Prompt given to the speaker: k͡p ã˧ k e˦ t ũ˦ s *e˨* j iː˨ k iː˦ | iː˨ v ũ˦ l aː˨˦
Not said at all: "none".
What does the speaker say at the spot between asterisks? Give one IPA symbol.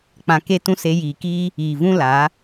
e˧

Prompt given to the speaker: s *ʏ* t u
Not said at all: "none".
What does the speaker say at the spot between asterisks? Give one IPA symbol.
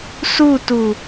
u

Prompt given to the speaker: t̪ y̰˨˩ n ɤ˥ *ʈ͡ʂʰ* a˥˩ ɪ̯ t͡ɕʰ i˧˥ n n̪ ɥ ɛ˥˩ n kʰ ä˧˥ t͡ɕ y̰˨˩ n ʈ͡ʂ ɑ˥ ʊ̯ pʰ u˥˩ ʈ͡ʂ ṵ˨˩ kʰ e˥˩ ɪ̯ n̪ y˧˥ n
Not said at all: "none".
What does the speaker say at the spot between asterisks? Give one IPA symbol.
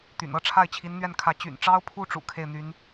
ʈ͡ʂʰ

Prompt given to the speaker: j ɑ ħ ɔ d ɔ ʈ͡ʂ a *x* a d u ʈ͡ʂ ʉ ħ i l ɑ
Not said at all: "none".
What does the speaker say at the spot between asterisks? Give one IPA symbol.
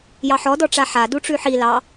ħ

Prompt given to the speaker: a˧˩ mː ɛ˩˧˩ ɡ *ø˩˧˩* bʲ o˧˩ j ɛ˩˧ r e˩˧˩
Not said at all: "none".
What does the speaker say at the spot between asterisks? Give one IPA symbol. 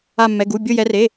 u˩˧˩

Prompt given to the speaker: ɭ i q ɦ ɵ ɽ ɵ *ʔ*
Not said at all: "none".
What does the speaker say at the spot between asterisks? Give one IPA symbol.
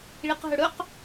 q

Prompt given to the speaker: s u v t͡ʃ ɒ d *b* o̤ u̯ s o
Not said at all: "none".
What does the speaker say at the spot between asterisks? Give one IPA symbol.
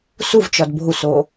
b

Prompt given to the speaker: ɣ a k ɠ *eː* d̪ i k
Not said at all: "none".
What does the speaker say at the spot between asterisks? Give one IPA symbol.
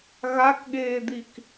eː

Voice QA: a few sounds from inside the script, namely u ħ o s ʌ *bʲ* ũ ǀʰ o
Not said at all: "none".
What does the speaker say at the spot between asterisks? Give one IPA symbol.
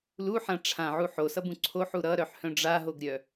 b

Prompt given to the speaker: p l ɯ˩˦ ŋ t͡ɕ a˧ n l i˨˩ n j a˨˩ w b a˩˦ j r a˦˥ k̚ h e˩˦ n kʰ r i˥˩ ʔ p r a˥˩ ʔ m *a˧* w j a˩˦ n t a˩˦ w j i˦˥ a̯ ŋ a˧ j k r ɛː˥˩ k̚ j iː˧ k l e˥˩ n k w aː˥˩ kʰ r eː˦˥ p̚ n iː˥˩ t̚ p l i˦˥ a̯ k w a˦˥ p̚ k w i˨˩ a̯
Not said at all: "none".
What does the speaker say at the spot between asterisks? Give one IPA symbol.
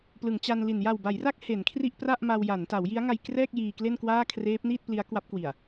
a˧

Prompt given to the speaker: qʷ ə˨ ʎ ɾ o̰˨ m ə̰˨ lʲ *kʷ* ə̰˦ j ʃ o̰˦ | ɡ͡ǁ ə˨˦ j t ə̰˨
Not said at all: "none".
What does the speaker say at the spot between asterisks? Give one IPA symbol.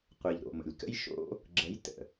k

